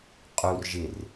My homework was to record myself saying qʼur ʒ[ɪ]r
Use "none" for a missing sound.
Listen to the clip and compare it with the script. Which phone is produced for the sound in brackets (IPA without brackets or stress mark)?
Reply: ɪ